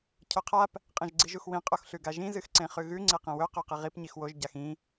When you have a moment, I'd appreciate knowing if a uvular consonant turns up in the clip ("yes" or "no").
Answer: yes